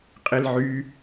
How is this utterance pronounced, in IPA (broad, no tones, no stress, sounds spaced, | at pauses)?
qʼ e l ʕ y